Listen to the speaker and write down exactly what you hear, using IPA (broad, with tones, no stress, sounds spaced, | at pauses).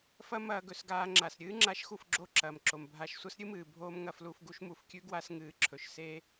f ɐ˦ m ɐː˧ ɡ ɵ˨ s ɡ aː˧ ŋ͡ǁ a˨ s ɾʲ ɨː˦ ŋ͡ǁ a˧ ʃ x u˦˨ f ɡ͡ǁ o˦˨ ǁ ɐː˨ m ǁ o˨ m bʱ a˧ ʃ sʷ ɐ˦ s ɾʲ ɨ˦ m ɨː˨ bʱ oː˦ m ŋ ɐ˧ f l u˧ f ɡ u˦ ʃ m u˨ f kʲ ʉ˦ ɡ w a˦ s ŋ ɨː˨˦ ǁʰ ɵ˨ ʃ s eː˦